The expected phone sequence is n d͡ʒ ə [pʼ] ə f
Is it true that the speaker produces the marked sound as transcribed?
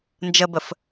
no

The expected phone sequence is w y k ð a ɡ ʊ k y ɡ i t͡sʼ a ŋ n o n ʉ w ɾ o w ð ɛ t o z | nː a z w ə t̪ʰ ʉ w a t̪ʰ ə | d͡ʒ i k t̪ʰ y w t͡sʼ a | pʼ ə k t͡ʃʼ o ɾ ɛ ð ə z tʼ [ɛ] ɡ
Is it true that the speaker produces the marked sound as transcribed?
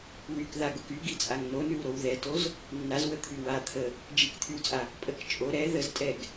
yes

